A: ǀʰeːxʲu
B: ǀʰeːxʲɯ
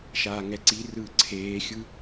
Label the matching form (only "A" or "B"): B